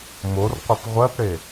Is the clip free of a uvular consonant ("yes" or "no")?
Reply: no